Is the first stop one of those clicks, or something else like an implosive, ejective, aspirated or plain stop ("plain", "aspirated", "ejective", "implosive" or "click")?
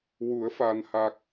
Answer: plain